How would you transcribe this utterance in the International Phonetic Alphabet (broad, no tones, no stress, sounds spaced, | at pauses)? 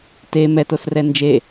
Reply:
t e m ɛ t o s r ɛ n d͡ʒ e